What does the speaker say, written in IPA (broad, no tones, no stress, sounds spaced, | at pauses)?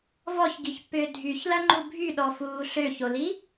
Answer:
v ɔ ç ɡ i ç pː ʏː dʱ y ç l ɐ ŋ͡ǃ u bʱ y ɗ ɔ f uː ɬ ø ç o l i